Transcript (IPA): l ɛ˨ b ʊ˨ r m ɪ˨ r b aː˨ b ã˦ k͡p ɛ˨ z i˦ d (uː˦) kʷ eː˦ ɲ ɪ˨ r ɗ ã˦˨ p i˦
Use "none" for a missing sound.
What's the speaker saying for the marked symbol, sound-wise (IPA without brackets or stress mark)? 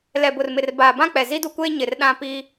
u˦